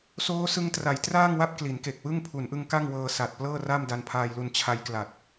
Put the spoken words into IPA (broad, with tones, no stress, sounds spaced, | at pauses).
s oː˦˥ s ɯ˧ ŋ t r a˩˦ j t r aː˥˩ ŋ w a˥˩ p̚ k l i˩˦ n k e˨˩ k̚ w ɯ˥˩ ŋ pʰ u˩˦ n ʔ ɯ˧ ŋ k a˥˩ ŋ w ɤː˧ s a˨˩ t̚ p l ɤː˥˩ r a˥˩ m d a˧ n pʰ aː˧ j l u˧ n t͡ɕʰ a˧ j k l a˨˩ t̚